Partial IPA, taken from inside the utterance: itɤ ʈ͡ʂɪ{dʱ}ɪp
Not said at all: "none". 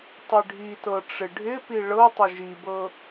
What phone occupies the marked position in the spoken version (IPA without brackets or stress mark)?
ɖʱ